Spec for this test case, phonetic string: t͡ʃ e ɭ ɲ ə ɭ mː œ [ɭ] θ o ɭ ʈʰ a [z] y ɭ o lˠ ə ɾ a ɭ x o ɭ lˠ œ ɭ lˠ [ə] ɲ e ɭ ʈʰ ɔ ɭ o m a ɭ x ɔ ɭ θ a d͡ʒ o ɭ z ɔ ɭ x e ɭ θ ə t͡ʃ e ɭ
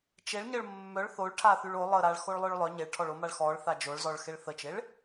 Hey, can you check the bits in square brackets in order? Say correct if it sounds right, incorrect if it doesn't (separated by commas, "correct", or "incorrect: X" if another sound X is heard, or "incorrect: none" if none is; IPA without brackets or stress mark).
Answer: correct, incorrect: θ, incorrect: œ